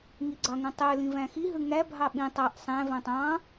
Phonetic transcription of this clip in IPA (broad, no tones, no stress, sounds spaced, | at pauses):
ŋ i ɡ͡ǀ ɑ ŋ ũ tˤ ø l ĩ v æ̃ x i ɦ ɯ ŋ æ bʱ ɑ ɓ ĩ tˤ ɑ ʔ sˤ æ̃ v æ̃ tˤ ɑ̃